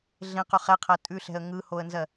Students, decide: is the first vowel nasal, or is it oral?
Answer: nasal